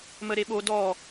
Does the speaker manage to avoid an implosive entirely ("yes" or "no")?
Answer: no